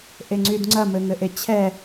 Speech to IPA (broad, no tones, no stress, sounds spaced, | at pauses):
ʔ e ŋ͡ǀ y d ŋ͡ǀ ɐ m ɘ ŋ ɘ ʔ e t͡ɕʰ ɛ